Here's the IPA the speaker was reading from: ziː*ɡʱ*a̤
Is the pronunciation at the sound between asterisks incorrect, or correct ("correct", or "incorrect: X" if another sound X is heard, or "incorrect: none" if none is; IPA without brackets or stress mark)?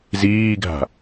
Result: correct